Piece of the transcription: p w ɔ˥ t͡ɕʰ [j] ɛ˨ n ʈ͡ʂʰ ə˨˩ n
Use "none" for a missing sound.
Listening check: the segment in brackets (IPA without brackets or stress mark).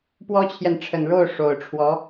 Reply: j